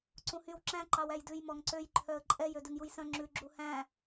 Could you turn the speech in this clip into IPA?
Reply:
ǀũhyw ǁæ̃ ǃɑwæjdʉj mɔŋǀøj ǃʰœə̯ǃʼɛj ødʉŋjujsœ̃ ŋ͡ǁʉ ɡ͡ǁuhæ̃

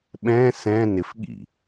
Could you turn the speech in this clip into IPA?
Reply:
ɓɛ̃ sɛ̃ nɪfɠḭ

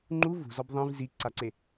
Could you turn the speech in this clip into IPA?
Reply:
ŋ͡ǃu vṳzɔb ðˤĩv ziǀaǀe

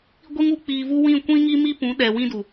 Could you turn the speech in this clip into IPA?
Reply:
ɡʷi˦ŋu˧k͡piː˧vu˦ wĩ˦˨kʷĩ˦ŋi˦ mi˦pũ˨˦ ɗɛ˨wĩ˦du˨

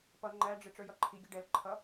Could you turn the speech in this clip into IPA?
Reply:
pʌ ŋ͡ǃæɖ͡ʐɪ ʈ͡ʂə˞jʌǃʰiɡʲʌ ɖɛl ǃʰʌ

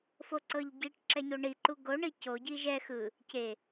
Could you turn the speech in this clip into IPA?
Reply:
foǀɤʎɟiʈ ǁɛɲoɳi ǃuɡo ɳico ɟiʒɛ xɯ | ce

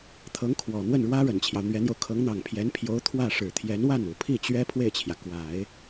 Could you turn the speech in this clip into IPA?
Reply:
t̪ʰɤ˧˥ŋkʰwɔ˨˩n̪wə˥˩nɻwä˥ ɻə˨˩nt͡ɕʰjɑ˦ʊ̯n̪ɥɛ˧˥n̪jo˧ʊ̯ kʰɤ˧˥ŋn̪ɑ˨˩ŋpʰjɛ˧˥npʰjo˧˥ʊ̯ t̪ʰwä˥˩ ʂɻ̩˨˩t̪ʰjɛ˧˥nwa˥˩n u˨˩pʰi˥˩t͡ɕɥɛ˥ pʰwe˥˩ɪ̯t͡ɕʰjä˩ kwa˨˩˦ɪ̯

